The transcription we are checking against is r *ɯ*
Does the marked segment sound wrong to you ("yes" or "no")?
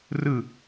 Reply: no